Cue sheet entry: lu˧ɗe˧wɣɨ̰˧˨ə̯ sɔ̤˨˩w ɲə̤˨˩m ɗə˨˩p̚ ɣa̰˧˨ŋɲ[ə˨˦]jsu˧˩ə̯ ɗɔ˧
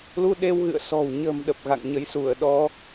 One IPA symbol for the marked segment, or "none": ə˨˦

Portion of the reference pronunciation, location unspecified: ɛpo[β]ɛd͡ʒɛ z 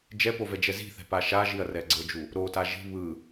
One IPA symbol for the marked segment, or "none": v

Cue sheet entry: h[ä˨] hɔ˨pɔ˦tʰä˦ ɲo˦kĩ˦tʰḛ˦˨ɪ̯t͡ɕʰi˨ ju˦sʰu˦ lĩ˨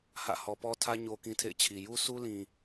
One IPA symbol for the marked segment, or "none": ä̰˦˨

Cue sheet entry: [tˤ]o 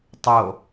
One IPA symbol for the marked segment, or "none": tˤ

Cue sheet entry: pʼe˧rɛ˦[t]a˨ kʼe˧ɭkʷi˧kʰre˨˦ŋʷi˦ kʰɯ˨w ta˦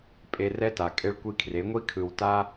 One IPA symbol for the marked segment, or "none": t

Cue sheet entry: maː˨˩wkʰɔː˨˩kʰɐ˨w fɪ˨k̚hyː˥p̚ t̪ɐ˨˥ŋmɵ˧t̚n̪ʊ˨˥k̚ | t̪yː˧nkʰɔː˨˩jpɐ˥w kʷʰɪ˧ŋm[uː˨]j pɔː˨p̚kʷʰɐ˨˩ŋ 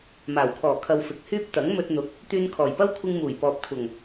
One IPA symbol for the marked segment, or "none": uː˨˩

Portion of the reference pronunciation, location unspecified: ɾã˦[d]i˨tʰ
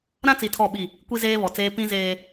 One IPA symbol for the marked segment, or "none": t͡s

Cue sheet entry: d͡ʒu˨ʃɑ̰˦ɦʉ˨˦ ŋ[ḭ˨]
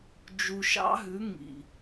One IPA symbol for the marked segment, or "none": ḭ˨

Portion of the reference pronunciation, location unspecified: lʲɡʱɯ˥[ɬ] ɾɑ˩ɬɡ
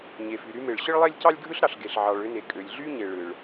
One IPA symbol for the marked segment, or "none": ɬ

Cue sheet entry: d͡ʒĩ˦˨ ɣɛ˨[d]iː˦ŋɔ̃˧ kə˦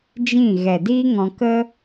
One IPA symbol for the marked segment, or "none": d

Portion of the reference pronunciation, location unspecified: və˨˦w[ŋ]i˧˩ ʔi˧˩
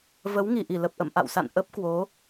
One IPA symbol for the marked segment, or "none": ŋ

